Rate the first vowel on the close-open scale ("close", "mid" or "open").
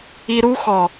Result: close